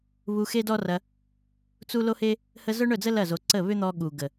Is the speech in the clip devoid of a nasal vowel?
yes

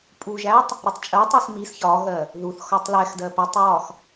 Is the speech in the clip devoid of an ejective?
no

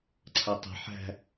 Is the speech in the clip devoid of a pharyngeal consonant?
no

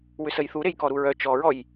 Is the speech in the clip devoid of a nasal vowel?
yes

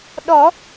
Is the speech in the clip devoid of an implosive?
no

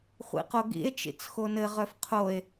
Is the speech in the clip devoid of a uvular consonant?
no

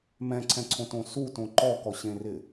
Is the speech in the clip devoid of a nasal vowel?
no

